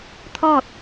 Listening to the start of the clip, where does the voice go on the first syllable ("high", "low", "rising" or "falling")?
falling